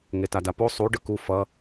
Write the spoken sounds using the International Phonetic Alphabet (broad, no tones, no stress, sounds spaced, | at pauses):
ŋ e t a d a p o sˤ u ɖ ɯ k u f ʌ